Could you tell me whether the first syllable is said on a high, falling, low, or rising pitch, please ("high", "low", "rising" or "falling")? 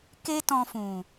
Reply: high